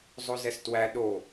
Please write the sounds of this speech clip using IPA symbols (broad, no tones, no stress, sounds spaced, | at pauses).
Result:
zˤ o z ɛ s t w æ ɗ o